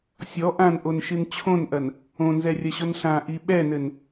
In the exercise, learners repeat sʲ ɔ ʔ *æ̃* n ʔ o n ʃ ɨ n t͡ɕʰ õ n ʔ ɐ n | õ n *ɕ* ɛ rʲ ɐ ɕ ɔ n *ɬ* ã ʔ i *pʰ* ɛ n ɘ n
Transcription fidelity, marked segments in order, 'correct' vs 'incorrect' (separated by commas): incorrect, incorrect, correct, incorrect